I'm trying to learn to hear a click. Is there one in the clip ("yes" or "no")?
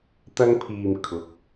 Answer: no